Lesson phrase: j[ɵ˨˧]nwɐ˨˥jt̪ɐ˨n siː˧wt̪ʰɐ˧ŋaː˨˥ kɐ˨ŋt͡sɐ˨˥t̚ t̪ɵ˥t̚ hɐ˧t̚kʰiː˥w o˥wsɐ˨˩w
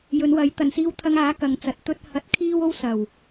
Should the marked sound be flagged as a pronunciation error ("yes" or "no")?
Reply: no